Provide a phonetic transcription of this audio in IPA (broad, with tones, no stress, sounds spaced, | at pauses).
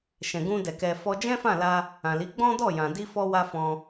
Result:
ʃ ɛ̃˨ ɡ ũ˧ d ɛ˨ k ɛ˧ f ɔ˦ d͡ʒ ɛ̃˦ f ã˦˨ l a˧ | ã˨ l i˨˦ ɡ͡b ɔ̃˦ d ɔ˦˨ j ã˨ d i˧ f ɔ˧ w a˧ f ɔ̃˧